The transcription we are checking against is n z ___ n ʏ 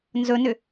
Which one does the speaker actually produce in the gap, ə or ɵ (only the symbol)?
ɵ